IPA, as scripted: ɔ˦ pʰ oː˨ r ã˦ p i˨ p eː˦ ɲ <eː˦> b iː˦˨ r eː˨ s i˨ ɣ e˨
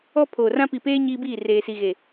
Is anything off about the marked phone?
yes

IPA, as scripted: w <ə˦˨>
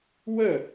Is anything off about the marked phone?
no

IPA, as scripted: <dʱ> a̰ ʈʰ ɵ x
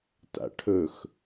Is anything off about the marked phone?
yes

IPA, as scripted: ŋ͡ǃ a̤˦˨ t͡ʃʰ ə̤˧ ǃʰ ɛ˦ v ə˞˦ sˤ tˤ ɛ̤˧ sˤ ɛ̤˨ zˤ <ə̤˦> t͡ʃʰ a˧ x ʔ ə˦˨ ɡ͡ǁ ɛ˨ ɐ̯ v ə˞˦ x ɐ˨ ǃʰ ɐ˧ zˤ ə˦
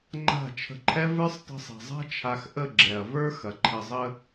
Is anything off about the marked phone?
yes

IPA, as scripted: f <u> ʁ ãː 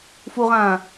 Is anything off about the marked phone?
no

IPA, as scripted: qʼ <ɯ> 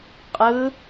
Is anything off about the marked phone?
no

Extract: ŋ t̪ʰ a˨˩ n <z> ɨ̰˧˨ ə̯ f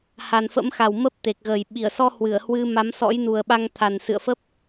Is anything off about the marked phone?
yes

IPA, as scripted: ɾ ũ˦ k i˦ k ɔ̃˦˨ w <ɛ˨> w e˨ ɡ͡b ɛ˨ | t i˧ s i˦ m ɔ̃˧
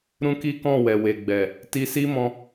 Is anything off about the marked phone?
no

